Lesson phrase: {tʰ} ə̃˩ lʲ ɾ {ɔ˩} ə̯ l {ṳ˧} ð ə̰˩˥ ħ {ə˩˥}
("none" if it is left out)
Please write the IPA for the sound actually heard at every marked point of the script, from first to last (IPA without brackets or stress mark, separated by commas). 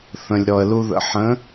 θ, ɔ˩, u˧, ə̃˩˥